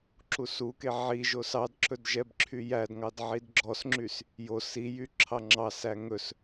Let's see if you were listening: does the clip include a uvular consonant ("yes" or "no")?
no